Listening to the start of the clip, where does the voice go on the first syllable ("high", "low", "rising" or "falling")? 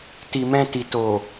low